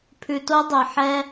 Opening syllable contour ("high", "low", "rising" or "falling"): low